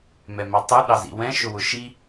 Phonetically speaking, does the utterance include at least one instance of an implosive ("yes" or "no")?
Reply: yes